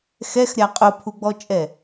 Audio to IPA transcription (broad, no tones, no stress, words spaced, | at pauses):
xɛxɾʲa qʼʊpʰuɡ͡bɔt͡ʃʼɛ